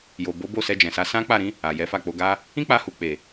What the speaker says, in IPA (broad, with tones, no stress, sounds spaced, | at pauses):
j o˨ b o˨˦ b o˦˨ s ɛ˧ d͡ʒ ɛ̃˨ s a˨˦ s ã˦ k͡p a˦˨ ɾ ĩ˨˦ | a˨ j ɛ˨˦ f a˦˨ k͡p o˧ ɡ a˧ | ĩ˦ k͡p a˧ h u˨ k͡p e˨